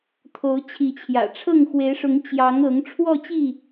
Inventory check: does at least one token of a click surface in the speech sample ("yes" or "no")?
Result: no